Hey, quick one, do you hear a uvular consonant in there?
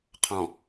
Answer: yes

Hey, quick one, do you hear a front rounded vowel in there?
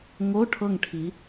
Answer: no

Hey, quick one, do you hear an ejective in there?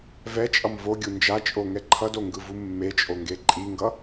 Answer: yes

